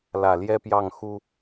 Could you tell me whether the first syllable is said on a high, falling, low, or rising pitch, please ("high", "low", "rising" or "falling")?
low